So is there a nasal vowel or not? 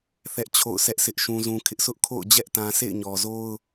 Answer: yes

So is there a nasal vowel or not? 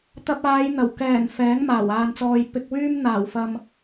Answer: no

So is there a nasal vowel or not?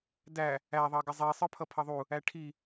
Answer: no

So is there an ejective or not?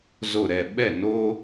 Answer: no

